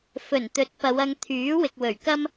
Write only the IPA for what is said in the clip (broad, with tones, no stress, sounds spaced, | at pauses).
f ɵ˨˩ n t̪ ɵ˨˥ t̚ p ɐ˨˧ w ɐ˧ ŋ t̪ʰ yː˨˥ w ɪ˨ k̚ w ɵ˨˩ ɥ k ɐ˥ m